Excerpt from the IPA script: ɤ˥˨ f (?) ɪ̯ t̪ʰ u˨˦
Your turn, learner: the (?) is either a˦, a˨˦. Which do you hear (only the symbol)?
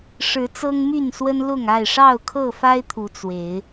a˦